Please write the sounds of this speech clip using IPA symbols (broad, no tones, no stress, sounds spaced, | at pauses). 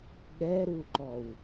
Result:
ɠ ɛ ɾ u ǃ ɔ w